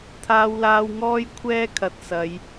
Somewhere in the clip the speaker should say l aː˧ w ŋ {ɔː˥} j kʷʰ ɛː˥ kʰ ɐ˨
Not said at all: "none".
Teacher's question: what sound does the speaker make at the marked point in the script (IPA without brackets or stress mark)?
ɔː˥